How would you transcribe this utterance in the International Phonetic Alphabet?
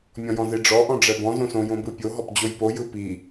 mʲ ɔ̃ j ɔ̃ z i ɖ͡ʐ ɔ ʔ ɔ̃ ɖ͡ʐ ɛ b ɔ̃ z õ s õ j õ b ɯ pʲ o ɦ ɔ p d͡ʑ o j p o j ɯ p i

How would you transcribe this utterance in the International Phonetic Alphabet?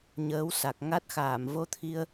ɲ əː˨˦ w s a˨˩ k̚ ŋ a˦˥ t̚ x aː˧˩ m v o˧ t̪ʰ i˧ ə̯

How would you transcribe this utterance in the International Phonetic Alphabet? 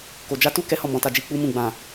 k o˨ d͡ʒ a˧ t u˦ k ɛ˦ h ɔ˦˨ m ɔ̃˨˦ t a˧ d͡ʒ i˧ k͡p u˦ m ũ˦˨ ɡ͡b ã˨

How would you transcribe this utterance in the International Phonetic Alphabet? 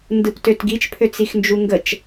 n d ɯ p t ø t ɡ i t͡ʃ pʰ ø t͡s i x n d͡ʒ u ŋ ɡ ə t͡ʃ

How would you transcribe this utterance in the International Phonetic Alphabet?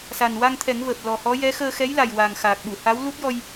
s a˨˩ n w a˧ ŋ t̪ʰ ɛ˨˩˦ ŋ v əː˨˩ p̚ l ɔ˨˩ h ɔ˧˥ j ɛ˧˥ x əː˧ x ɛ˧˥ j l a˨˩ j w a˨˩ ŋ x aː˨˩ k̚ ɓ u˨˩˨ h a˧˥ w l u˦˥ t̚ j ɔ˧ j

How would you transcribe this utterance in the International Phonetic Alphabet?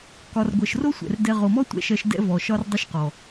k ɒ˨ r ɡʷ ɜ˨ ʃ r o˦ sʷ ɛ̰˨ r d ɛ˦ ʁ o˨ m ɔ˦ tʷ ɛ̰˦ ʃ ɜ˦ ʃ d ɛ̰˦ v ɔ˨ ʃ ɒ˦ r dˤ ɘ˦ ʃ q ɔ˨

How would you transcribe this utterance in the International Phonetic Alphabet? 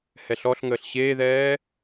h ɛ ɬ ɔ ɬ ŋ əː ɬ ɕ eː ð ɛː

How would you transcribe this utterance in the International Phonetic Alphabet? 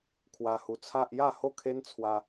kʰ w a˧ h u˧ t͡sʰ a˦ ʔ j a˥˧ h o˥˧ kʰ e˦ n t͡sʰ w a˧

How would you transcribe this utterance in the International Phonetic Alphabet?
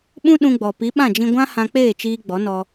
ɓ ũ˦ ɗ ũ˧ ɡ͡b ɔ˨ p i˨˦ ɓ ã˦˨ d͡ʒ ĩ˧ ɡʷ ã˦ h ã˧ k͡p eː˦˨ t͡ʃ iː˧ ɡ͡b ɔ˨˦ n ɔ˧

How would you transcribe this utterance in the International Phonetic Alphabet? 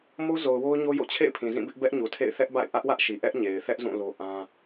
m o˦ z o˨ ʊ̯ w o˦ ʊ̯ ɲ o˦ j o̰˦˨ t͡ɕʰ ḛ˦˨ ɪ̯ pʰ ĩ˨ z ĩ˦˨ b ɪ˦ ʔ b ɛ˦ ʔ ɲ u˨ tʰ ḛ˦˨ ɪ̯ θ ɛ˦ ʔ b a̰˦˨ ɪ̯ ʔ ä˦ ʔ w ä˦ ʔ ʃ i˨ ʔ ɛ˦ ʔ ɲ e˨ ɪ̯ θ ɛ˦ ʔ z ũ˦˨ l o˦ ʔ ã˦

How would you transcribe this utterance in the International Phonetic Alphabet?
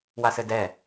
w a s ɘ d ɛ

